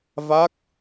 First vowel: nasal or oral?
oral